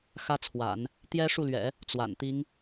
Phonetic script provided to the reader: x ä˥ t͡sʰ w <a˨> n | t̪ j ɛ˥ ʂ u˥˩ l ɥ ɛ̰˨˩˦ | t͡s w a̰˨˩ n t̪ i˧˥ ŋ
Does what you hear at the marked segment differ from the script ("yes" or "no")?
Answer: yes